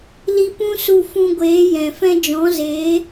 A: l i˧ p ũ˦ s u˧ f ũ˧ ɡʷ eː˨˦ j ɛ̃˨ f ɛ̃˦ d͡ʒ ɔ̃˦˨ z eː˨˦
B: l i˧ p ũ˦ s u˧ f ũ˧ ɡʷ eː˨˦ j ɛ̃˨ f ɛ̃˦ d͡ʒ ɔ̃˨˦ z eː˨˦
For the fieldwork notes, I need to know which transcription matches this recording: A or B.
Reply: B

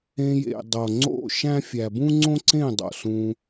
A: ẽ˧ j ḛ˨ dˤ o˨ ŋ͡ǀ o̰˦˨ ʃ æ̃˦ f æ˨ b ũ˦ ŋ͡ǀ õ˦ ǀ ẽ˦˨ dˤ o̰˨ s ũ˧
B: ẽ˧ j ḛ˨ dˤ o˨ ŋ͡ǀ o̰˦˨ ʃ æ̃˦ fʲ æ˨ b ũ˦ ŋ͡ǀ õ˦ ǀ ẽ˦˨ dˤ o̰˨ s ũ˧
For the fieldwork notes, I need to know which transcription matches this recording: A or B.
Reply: B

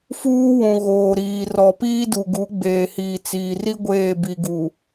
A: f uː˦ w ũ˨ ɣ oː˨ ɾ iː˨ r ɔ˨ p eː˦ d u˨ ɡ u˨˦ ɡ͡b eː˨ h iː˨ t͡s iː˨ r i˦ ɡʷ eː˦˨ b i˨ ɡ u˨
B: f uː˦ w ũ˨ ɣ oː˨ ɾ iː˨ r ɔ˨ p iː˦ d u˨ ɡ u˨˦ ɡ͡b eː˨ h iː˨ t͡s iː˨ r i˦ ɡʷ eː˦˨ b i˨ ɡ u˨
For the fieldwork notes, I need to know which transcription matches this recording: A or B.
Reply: B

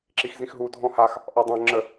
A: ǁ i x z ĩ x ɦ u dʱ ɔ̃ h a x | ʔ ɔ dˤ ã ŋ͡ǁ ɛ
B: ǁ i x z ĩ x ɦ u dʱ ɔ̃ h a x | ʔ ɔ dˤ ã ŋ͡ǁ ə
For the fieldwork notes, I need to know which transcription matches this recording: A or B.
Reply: B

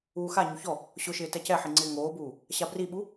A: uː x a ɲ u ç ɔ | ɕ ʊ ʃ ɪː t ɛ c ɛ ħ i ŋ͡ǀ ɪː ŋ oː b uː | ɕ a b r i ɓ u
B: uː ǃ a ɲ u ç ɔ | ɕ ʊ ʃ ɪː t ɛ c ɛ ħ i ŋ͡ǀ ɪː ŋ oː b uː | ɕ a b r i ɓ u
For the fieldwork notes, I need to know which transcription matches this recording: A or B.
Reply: A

